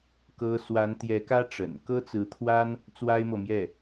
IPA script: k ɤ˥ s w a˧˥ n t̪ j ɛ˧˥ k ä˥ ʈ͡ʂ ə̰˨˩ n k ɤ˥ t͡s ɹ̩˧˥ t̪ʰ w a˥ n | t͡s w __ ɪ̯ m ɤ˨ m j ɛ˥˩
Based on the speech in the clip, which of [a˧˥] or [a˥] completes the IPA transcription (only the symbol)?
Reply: a˥